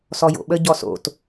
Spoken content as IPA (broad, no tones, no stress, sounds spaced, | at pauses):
s ɔ j o̰ ɓ ə ɟ ɔ s o̰ t